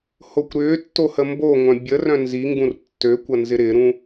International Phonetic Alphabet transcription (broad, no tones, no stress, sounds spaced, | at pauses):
h o kʷ ɾ ʏː tː o h ə m b o ŋʷ œ̃ bʲ ə r œ̃ n z i ŋ ɡ ũ r tː ø kʷ ɐ n z ɪ ɾ ɪ ɾ ũ